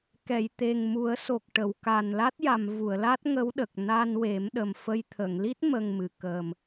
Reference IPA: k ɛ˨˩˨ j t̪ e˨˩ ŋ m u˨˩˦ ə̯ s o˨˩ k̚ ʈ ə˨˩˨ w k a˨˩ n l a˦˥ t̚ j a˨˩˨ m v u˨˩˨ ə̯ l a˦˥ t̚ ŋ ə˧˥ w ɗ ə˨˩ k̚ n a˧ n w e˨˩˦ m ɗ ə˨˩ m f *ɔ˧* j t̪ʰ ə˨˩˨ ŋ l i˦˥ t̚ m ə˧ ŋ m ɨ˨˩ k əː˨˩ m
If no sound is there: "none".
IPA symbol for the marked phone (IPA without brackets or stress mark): ə˧